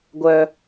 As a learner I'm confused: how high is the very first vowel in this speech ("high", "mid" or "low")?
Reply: mid